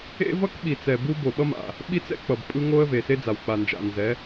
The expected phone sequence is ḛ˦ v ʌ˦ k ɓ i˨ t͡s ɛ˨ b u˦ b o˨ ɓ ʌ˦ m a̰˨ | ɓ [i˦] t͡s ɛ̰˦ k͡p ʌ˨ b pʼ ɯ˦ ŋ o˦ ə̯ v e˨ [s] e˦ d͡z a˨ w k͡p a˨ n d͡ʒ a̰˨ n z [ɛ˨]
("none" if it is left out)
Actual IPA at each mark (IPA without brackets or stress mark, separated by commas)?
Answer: i˦, s, ɛ˨˦